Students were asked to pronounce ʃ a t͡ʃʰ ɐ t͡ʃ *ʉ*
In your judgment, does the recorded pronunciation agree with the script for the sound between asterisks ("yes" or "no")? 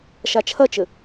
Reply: no